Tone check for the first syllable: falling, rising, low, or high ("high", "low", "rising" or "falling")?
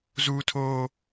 high